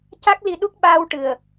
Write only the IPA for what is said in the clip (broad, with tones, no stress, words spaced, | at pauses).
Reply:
ca˦˥k̚li˧ ɗu˦˥k̚ɓaː˧wʈɨ˨˩ə̯